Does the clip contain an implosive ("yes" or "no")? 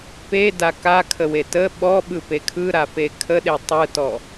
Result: yes